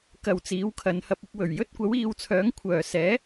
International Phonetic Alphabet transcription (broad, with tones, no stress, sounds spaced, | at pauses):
k ɐ˨ w t͡s iː˨˧ w kʰ ɐ˨˧ n h ɐ˧ p̚ ɪ˧ k̚ w ɵ˨˩ ɥ j ɵ˥ t̚ kʷ ɐ˨˥ w iː˧ w t͡sʰ œː˨˥ ŋ kʷʰ œː˨ s ɛː˨˥